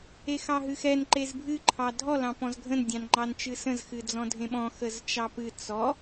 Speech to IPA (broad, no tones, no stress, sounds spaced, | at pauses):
e x ɑ ɦ ɨ x ɛ n ǃ e z bʱ ɨ ǃʰ ɑ dʱ ɔ l ɑ̃ p ɔ̃ z ɡʱ ə̃ n dʲ ɑ̃ n ŋ͡ǃ ɑ n t͡ʃ ɨ s ə̃ z x ɨ d͡z ɔ̃ dʱ ẽ ɓ ɔ̃ x ə z t͡ʃ ɑ p ɨ t͡s ɔ